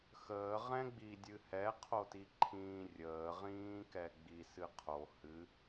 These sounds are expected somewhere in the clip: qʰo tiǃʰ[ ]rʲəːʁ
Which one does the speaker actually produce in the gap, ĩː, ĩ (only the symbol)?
ĩː